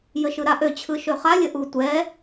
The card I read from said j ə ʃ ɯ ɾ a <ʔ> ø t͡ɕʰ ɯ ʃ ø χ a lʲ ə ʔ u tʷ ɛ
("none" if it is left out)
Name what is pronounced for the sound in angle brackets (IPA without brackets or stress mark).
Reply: ʔ